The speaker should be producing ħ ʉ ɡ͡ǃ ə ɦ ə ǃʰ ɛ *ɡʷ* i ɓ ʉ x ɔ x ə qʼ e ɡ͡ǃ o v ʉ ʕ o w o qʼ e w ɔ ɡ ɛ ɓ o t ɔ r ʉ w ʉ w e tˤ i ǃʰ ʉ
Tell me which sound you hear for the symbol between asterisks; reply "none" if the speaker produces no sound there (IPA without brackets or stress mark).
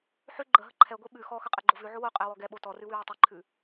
ɡʷ